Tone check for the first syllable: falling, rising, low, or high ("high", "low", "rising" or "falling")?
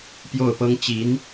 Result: falling